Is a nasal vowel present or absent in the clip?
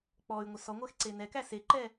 absent